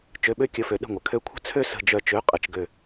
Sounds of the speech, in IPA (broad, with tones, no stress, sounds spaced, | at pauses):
t͡ʃ ø˧˥˧ ɓ ø˥ kʲ ə˧˥˧ f ø˨˦ ɗ ə̤˦˨ ŋʷ ə˩ kʰ ø˦˨ kʷʰ ə̤˥ t͡sʰ ø˥ s ə̤˦˨ d͡ʒ œ˦˨ t͡ʃ ø˧˥˧ qʼ ə˨˦ t͡ʃ ɡ ø˦˨